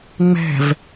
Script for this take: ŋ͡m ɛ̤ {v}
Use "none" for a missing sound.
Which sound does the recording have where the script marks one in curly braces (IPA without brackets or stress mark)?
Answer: v